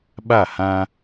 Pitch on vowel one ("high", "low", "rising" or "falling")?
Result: falling